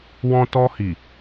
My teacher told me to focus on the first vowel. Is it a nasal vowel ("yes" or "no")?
yes